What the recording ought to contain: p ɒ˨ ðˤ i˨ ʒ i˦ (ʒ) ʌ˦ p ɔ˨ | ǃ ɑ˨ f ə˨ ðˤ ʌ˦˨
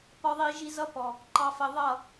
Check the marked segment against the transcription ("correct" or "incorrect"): incorrect